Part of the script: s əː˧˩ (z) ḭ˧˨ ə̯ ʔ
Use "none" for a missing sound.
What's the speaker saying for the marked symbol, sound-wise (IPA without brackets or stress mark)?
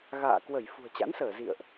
z